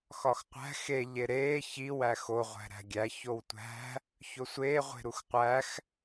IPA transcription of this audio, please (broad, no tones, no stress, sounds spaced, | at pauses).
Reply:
x ɒ x qʷ æ̤ x e ʎ e ɾ eː ç i w æ x o ʁʷ æ̤ ɾ æ̤ ɡʲ æ ç o w tʷ æ̤ | ç o sʷ eː ʁʷ e̤ ɾ u x qʷ æ x